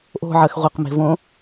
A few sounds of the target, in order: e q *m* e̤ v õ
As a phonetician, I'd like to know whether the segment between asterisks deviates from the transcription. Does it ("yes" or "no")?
no